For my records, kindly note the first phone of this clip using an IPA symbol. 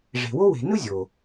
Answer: ʐ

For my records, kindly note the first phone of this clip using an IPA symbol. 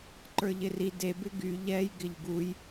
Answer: ǃ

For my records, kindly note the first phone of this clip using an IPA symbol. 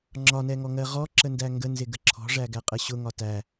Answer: ŋ͡ǁ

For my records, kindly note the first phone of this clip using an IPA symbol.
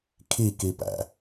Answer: kʰ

